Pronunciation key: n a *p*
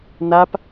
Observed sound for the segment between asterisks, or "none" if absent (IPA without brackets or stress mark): p